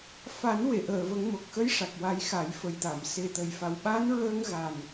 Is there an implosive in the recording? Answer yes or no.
yes